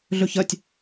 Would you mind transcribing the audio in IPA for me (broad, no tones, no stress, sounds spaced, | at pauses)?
ɮ ɵ ç ɐ tʲ